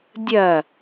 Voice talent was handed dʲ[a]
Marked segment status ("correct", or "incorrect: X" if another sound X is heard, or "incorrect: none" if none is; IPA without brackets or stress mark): incorrect: ɐ